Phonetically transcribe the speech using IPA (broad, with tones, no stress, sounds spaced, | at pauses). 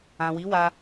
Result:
ã˨ w i˨˦ w a˧